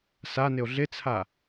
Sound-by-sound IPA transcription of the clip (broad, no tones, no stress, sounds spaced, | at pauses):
s a n ɪ o̯ ɮ ɪ t͡sʰ a